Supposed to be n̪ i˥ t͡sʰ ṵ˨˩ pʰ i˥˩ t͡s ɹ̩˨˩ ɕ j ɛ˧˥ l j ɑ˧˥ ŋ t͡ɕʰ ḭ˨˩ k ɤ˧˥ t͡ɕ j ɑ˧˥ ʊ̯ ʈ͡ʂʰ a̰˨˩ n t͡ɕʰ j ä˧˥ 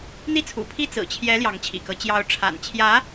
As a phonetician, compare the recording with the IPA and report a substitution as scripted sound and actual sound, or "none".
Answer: ɕ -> t͡ɕʰ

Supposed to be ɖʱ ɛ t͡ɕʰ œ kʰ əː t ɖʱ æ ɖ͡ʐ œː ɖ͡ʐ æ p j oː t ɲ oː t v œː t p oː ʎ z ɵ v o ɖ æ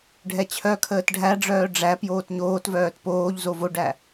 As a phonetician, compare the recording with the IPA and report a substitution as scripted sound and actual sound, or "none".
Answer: ɵ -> o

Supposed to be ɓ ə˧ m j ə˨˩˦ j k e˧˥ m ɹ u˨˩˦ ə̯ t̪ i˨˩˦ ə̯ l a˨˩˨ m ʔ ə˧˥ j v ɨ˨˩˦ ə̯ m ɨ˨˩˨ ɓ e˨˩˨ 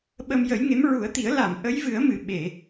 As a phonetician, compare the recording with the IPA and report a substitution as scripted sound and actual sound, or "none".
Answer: k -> ŋ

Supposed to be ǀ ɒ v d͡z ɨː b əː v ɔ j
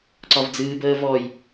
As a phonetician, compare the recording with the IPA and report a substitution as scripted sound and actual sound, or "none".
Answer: none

